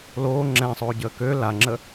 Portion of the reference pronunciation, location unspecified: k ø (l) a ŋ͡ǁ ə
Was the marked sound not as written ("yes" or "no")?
no